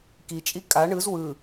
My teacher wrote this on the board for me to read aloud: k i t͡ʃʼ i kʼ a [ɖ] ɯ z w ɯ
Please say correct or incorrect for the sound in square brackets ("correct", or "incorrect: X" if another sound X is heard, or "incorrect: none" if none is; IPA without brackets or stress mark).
incorrect: ɳ